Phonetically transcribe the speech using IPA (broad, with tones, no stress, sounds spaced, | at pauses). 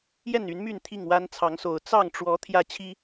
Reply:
j ɛ˥˨ n y˨˦ n m y˥˨ n t̪ʰ i˥˨ ŋ w a˦ n t͡sʰ ɑ˨˦ ŋ s o˨˩ ʊ̯ t͡s ɑ˥˨ ŋ ʈ͡ʂ w ɔ˨˦ t̪ʰ j ä˦ t͡ɕʰ i˦